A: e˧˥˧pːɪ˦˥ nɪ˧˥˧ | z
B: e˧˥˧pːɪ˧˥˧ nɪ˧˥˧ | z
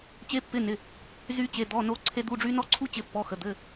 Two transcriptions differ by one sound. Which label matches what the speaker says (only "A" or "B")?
B